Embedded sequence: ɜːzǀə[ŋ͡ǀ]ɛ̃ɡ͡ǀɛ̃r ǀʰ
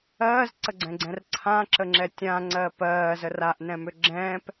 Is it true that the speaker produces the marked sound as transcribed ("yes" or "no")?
no